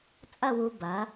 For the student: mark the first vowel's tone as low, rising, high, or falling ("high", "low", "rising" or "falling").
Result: falling